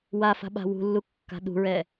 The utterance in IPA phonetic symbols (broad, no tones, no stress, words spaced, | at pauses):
wafa̤ɓa̤ wṳlːukːa̤ ɗṳɹɛ